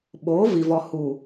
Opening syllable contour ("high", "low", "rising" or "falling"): rising